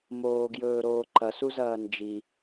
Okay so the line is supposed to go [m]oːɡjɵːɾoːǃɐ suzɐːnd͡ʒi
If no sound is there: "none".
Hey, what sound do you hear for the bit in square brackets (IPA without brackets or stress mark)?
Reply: m